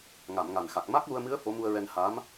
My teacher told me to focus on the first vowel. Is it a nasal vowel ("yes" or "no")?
no